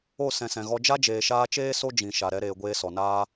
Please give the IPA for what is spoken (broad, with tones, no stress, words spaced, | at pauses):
o˦˨ sɛ̃˨sɛ̃˨ɣɔ˧ d͡ʒa˦d͡ʒeː˨ʃaː˧t͡ʃeː˦ so˦d͡ʒĩ˨ ʃa˨ɾɛ˧ɾeː˨ ɡʷeː˧sɔ˨naː˦